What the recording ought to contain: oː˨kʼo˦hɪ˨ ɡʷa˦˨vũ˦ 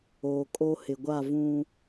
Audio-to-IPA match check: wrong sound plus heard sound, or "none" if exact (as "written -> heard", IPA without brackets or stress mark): none